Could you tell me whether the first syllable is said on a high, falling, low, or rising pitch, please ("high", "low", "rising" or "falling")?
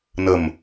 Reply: low